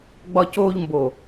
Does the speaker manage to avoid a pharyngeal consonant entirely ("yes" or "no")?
yes